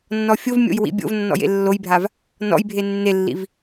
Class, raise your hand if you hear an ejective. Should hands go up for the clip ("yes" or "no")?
no